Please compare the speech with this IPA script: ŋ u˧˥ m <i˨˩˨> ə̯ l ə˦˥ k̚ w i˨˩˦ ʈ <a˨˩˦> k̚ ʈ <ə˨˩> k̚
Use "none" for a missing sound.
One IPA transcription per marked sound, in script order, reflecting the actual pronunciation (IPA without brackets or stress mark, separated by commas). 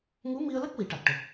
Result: i˧, a˨˩, ə˨˩